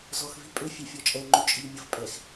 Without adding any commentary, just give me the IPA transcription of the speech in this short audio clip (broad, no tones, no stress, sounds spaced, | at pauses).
z ɔ x v i pʼ ø fʲ ɛ fʲ ɔ t͡ʃʼ ɛ ŋ͡ǃ u t͡ʃʼ i ʎ mʲ ə f pʼ ɛ x